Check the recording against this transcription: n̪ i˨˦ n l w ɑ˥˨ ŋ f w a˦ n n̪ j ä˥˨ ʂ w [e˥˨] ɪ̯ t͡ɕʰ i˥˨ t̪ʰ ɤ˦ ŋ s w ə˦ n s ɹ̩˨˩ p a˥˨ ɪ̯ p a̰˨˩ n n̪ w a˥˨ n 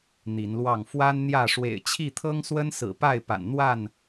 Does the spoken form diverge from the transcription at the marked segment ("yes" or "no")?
yes